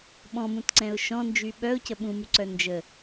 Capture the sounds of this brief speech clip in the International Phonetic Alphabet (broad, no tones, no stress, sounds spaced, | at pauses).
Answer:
ɓ ɔ̃ m ũ t ǀ ɛ̃ ʊ̯ ʃ ɔ̃ n d͡ʒ y ɓ œ ʊ̯ c ə ɓ ũ m y ǀ œ n d͡ʒ ə